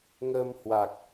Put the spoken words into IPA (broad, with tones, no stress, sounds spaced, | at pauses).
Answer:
ŋ əː˧ m h w a˨˩ k̚